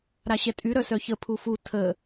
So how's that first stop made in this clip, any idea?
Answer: ejective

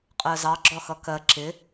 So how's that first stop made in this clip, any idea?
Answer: ejective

